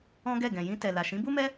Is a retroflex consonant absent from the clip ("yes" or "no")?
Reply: yes